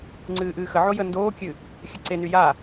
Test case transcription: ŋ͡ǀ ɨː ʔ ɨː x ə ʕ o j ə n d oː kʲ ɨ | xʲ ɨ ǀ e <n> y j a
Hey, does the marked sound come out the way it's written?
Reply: yes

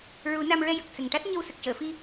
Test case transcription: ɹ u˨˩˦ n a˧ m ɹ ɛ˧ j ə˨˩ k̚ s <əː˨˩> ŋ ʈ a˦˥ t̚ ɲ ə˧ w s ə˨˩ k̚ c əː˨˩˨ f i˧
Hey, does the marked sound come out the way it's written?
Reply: no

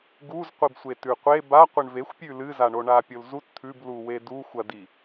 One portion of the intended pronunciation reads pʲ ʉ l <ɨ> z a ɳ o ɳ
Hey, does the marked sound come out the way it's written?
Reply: yes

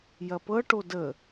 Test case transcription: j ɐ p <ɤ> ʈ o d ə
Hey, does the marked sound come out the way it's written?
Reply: yes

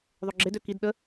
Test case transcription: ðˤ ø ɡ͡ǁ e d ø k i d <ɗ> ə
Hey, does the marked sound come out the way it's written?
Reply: yes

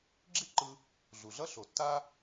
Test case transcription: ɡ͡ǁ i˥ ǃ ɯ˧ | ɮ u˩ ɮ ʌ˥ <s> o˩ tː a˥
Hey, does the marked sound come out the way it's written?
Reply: no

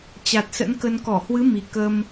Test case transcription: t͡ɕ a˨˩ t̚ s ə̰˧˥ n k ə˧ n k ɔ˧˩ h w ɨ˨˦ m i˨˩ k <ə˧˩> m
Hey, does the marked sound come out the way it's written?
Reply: no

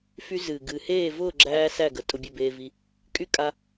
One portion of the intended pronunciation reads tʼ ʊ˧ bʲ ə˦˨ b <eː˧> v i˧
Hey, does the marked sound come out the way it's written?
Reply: yes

